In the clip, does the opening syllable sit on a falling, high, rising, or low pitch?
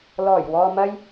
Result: low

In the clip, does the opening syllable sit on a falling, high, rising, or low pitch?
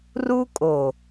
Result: high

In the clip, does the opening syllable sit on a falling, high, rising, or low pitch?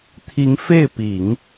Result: rising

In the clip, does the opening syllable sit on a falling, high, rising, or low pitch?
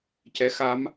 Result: rising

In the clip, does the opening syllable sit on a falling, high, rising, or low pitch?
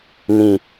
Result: low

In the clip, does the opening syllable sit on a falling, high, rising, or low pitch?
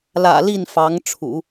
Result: low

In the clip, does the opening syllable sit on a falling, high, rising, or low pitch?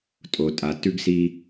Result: low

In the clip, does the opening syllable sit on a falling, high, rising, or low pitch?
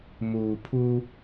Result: low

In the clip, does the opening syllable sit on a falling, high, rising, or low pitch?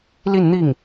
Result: falling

